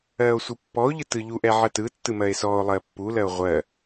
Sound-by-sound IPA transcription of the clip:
ɜː o̯ sʷ ɯ pː ɔ o̯ ʎ ɯ t ɯ ʎ u ʔ ɛ ʕ ɜ t ɯ tː ɯ m ɜ e̯ s ɔː o̯ lˠ ɜː pː u l ɜ o̯ ʁʷ ɜ

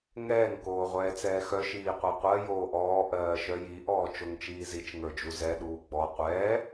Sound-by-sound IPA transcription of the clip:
ŋ ɛː ŋ k oː ʁʷ ɛː t͡s ɛː x œ ʃ iː qʷ ɜ qʷ ɜ j oː ʔ ɔː ʔ ɜː ʃ œ j i ʔ ɔː t͡ʃ o ŋ t͡ʃ iː z i t͡ʃ ŋ ə˞ d͡ʒ u z ɛ ɗ uː ɡ͡b ɔ qʷ ɛː

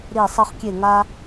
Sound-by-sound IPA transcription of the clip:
ɾ i˧˩ sˤ ə˥˧ χ kʲ e˧˩ ŋ a˧

